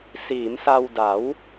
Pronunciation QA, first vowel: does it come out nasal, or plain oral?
oral